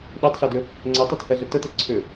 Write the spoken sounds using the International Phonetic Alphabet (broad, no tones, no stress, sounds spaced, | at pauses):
ɗ ɛ tˤ ɬ ɛ d ʏ | ŋ͡ǀ ɛ tˤ o t h ɛ ɮ ə t ə t ɛ ǀʰ ʏ